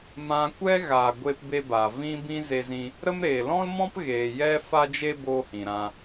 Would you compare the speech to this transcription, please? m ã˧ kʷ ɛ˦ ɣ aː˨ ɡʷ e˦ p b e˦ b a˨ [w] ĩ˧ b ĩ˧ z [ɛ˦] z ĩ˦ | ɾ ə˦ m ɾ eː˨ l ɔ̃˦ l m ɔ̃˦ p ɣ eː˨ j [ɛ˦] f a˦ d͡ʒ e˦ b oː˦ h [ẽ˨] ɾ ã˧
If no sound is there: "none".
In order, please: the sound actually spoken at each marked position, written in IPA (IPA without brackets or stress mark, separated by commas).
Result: v, e˦, ɛ˦, ĩ˨